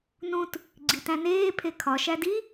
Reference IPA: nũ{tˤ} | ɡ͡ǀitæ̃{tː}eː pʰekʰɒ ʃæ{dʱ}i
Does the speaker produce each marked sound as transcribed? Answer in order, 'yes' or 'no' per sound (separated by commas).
no, no, no